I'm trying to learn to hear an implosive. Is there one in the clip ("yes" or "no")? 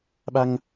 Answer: yes